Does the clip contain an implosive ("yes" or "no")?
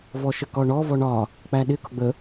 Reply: yes